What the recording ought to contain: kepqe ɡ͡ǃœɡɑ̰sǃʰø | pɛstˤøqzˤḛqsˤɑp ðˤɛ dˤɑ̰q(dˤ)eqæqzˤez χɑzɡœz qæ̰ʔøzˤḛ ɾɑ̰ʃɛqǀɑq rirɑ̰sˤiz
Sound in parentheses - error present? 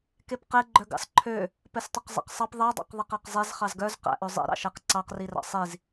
yes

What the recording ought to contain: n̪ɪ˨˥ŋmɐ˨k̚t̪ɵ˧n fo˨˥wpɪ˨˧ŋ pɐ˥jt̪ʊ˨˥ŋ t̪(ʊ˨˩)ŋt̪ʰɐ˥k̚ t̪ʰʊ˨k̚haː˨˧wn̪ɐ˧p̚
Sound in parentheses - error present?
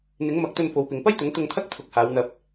yes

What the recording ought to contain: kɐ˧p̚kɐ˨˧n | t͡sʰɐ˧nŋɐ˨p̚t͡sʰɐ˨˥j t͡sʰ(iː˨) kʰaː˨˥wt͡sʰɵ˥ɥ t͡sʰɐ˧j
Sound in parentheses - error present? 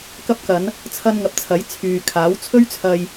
yes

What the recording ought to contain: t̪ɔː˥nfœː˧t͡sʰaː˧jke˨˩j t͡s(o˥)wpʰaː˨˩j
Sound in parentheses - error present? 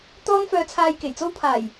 no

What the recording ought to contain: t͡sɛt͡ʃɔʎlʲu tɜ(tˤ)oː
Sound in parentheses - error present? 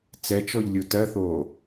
yes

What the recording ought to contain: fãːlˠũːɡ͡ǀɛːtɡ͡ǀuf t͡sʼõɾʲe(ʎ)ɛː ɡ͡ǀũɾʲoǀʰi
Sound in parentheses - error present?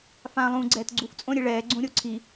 yes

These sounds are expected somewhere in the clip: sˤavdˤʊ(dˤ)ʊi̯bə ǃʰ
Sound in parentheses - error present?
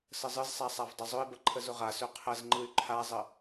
yes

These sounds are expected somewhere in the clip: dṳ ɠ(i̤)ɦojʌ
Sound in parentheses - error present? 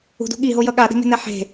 yes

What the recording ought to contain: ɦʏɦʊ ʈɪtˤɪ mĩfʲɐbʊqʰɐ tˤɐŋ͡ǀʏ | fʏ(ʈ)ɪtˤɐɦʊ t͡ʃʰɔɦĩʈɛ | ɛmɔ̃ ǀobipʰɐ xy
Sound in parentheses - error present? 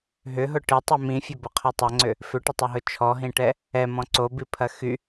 no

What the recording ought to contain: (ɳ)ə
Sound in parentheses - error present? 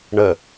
no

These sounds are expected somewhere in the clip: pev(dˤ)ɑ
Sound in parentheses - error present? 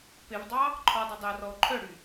no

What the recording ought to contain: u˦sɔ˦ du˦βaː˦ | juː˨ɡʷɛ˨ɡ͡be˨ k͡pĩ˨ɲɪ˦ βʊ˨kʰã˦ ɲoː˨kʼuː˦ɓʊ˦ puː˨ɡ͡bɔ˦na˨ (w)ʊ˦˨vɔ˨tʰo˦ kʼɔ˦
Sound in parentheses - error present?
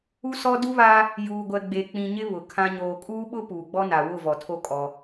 no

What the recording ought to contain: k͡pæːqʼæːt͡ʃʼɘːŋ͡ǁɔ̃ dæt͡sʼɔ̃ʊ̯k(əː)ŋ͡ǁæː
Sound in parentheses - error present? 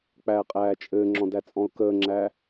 no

